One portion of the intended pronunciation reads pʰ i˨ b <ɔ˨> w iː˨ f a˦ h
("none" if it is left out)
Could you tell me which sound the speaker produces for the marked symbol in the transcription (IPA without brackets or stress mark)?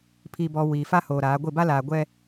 ɔ˨